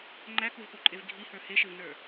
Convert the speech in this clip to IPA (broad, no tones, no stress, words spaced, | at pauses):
ŋ͡ǃækuvpoǃʼev ɡʱihə˞ heʃɘvnə˞